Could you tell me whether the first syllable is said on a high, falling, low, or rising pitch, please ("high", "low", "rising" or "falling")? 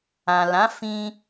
low